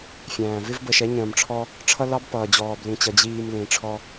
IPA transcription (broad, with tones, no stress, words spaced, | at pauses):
fʲæ̃ː˨ vɪ˦vbə˨ʃɛ˨˦ ɲə̃ː˨mʈ͡ʂʰɔ˦ | ʈ͡ʂʰʌ˦lɑ˦b pʌː˨d͡ʑɔː˨blĩ˨t͡ɕʌ˨ d͡ʑiː˨m lĩ˨ʈ͡ʂʰɔ˦